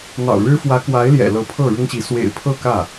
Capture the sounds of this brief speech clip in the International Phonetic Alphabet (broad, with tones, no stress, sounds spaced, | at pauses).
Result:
n̪ ɑ̰˨˩ ʊ̯ ɻ ɻ̩˥ f w ä˧˥ k w a˧˥ ɪ̯ l j ɛ̰˨˩ l ɤ˧˥ pʰ ɤ˥˩ ɻ ʊ˥ ŋ ɕ i˧˥ s w ḛ˨˩ ɪ̯ pʰ ɤ˥˧ k ä˥˩